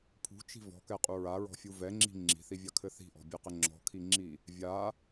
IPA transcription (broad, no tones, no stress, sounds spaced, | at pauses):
pʰ ṳ t͡ʃ i̤ v ɔ̤ k ɛ qʼ u ɹ a ɹ ɔ̤ fʲ u v ɛ ŋ͡ǁ i̤ ŋ͡ǁ i̤ θ i vʲ a kʰ ɘ θ i̤ ʔ ɔ̤ bʲ ɛ q ɘ ŋ͡ǁ ɔ̤ kʰ i ŋ͡ǁ i | vʲ a